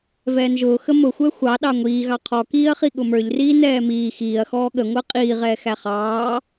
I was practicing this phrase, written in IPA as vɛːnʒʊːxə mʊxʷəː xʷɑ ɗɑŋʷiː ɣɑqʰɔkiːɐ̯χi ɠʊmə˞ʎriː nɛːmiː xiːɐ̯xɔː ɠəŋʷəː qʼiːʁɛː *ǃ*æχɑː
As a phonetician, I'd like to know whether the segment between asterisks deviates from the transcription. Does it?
yes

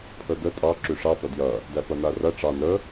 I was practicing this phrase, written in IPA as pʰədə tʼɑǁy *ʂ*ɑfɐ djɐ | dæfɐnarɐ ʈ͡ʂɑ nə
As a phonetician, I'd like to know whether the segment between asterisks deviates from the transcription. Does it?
no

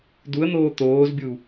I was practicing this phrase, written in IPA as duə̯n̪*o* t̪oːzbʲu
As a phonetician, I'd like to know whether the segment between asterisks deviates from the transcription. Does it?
yes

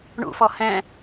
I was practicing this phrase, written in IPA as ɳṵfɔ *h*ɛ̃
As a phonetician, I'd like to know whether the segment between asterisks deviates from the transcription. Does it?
no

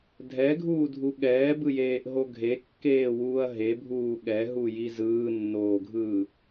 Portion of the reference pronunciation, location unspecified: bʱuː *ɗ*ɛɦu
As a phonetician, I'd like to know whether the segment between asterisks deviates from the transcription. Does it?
yes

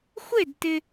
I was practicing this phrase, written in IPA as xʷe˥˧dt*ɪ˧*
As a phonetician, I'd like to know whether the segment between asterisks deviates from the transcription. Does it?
no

